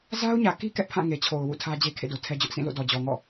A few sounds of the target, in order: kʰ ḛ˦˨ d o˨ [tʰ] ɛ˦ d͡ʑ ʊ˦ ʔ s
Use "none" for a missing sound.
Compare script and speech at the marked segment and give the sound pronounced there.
tʰ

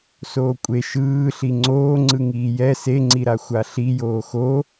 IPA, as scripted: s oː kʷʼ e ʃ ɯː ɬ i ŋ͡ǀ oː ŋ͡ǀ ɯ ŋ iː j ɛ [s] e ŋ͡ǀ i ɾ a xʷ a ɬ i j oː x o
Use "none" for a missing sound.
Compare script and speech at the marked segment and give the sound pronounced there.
s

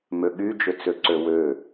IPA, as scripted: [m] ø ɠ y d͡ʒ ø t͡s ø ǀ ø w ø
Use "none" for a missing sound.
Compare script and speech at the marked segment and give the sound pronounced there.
m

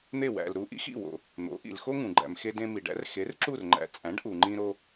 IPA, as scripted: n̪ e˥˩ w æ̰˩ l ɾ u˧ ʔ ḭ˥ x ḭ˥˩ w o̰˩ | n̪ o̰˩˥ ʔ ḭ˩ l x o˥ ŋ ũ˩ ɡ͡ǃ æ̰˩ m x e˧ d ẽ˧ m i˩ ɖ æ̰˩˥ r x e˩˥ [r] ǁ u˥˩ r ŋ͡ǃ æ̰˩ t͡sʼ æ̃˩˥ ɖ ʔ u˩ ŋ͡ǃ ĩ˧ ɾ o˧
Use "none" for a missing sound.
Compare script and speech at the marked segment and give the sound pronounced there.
r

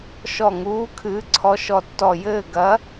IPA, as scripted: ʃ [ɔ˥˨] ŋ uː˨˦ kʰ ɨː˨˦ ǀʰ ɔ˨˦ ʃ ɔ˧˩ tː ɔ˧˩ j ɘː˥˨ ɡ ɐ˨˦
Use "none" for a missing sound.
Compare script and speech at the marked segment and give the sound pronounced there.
ɔ˧˩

